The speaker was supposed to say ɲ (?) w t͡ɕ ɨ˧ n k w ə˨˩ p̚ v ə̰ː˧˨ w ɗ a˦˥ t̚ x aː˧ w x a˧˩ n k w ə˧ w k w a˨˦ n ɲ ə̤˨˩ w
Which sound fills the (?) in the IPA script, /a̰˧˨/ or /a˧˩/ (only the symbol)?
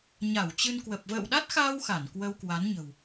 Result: a˧˩